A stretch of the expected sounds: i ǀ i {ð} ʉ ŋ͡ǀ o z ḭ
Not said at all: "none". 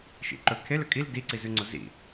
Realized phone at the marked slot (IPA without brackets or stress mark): z